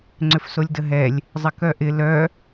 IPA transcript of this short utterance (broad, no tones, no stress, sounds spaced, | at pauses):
ŋ͡ǀ ʏ f s o lʲ d ə ɦ ɛ lʲ | zˤ ɪ k œ ʔ ɪ l œ